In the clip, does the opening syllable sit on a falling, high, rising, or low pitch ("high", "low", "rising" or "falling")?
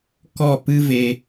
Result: falling